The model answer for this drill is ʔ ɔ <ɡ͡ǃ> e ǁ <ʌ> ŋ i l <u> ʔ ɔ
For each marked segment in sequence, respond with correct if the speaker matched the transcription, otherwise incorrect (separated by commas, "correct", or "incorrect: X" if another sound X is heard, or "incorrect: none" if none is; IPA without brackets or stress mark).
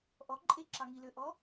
incorrect: ǃʼ, incorrect: ɑ, incorrect: ø